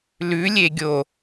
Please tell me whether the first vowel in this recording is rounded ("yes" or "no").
yes